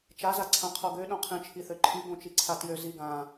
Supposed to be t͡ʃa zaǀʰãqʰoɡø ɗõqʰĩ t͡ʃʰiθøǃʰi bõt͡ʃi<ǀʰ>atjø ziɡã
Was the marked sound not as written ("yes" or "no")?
no